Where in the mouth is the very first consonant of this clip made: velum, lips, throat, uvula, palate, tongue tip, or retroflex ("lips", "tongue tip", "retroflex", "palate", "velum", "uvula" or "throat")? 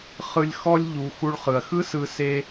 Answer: uvula